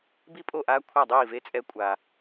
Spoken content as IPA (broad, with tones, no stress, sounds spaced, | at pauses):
b i˥˨ pʼ o˥˨ ʔ aː˦˥ kʷʰ a˥˨ dˤ iː˥˨ v e˦˥ t͡sʼ ɛ˦˥ kʷʼ a˨